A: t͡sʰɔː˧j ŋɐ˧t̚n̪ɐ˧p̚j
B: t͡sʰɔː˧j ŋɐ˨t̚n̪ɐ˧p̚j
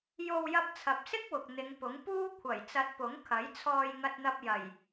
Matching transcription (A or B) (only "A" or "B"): A